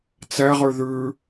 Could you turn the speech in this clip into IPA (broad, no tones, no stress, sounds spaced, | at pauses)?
t͡s ɛ ʁ ʉ ð ʉ